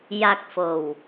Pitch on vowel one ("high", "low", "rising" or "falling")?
falling